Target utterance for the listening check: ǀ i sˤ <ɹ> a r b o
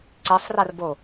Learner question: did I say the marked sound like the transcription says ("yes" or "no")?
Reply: no